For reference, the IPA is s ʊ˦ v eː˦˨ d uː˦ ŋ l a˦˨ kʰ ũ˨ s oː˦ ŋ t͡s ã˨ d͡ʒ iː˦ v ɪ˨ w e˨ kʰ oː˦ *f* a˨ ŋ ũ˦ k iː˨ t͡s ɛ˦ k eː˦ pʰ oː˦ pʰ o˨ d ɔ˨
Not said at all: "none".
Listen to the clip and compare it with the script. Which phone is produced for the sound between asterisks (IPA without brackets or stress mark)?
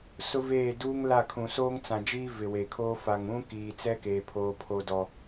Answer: f